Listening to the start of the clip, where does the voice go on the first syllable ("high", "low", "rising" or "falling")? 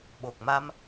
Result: low